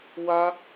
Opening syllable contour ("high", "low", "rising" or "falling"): high